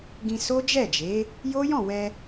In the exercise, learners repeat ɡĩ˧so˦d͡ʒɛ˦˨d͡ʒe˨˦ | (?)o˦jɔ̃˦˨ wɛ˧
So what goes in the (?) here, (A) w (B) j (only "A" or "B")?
B